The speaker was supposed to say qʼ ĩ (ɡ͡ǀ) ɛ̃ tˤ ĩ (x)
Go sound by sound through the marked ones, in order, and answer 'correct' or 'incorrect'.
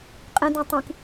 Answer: incorrect, incorrect

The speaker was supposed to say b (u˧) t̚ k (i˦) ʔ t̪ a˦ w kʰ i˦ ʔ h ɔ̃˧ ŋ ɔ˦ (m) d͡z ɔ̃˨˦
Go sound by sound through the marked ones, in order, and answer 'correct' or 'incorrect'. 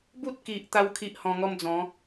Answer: incorrect, incorrect, correct

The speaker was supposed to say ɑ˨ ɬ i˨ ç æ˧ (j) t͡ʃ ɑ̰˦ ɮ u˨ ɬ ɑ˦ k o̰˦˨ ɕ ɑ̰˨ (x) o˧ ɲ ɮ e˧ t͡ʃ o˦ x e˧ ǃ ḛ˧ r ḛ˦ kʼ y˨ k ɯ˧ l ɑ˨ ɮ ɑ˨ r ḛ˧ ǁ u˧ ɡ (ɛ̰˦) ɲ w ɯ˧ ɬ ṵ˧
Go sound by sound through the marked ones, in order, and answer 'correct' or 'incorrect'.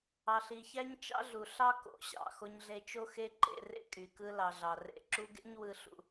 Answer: incorrect, correct, incorrect

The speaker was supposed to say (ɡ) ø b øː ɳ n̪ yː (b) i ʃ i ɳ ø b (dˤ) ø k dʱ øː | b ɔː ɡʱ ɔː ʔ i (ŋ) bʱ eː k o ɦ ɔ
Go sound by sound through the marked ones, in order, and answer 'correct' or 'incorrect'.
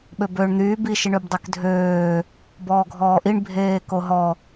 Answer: incorrect, correct, correct, incorrect

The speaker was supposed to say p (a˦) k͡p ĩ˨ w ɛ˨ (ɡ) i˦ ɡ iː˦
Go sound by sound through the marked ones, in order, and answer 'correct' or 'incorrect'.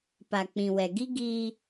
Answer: incorrect, correct

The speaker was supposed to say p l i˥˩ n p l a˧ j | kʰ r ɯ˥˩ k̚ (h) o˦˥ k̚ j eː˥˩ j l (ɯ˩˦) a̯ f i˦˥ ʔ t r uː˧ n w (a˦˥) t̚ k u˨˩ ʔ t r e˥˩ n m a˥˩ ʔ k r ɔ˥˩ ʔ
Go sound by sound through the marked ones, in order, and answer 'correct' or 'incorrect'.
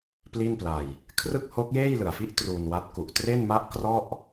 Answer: correct, incorrect, correct

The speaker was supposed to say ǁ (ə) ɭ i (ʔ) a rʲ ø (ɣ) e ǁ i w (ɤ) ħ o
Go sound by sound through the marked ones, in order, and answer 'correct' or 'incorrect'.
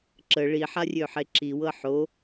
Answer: correct, incorrect, incorrect, correct

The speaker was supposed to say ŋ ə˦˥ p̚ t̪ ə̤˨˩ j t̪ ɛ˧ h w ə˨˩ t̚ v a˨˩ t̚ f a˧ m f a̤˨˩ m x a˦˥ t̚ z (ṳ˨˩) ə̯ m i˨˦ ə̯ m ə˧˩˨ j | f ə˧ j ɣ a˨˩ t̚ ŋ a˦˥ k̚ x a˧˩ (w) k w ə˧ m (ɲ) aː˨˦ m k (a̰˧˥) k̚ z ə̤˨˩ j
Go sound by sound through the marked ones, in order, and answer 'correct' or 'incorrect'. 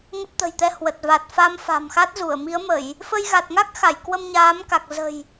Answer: incorrect, incorrect, correct, incorrect

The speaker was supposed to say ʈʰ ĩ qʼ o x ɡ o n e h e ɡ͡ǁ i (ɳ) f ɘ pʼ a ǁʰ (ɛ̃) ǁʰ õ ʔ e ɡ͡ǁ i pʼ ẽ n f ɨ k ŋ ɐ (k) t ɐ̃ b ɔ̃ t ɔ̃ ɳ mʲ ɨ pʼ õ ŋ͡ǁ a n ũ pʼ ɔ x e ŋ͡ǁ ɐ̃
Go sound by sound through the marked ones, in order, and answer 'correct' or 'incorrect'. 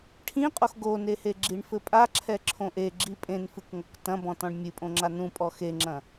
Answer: correct, incorrect, correct

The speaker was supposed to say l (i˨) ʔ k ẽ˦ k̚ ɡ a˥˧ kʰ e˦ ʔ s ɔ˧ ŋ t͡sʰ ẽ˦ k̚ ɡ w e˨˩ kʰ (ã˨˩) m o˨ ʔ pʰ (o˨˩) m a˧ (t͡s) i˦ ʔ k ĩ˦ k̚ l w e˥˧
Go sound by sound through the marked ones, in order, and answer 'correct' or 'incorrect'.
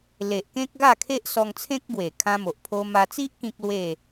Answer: incorrect, incorrect, incorrect, correct

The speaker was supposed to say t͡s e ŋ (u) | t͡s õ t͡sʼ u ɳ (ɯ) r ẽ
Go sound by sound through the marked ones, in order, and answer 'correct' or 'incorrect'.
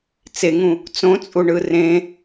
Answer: incorrect, correct

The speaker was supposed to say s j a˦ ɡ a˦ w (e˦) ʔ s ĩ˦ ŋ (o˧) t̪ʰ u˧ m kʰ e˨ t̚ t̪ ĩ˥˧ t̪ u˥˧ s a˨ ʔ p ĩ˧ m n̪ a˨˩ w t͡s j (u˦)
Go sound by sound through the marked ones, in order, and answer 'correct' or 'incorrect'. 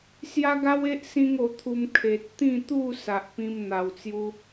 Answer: correct, correct, incorrect

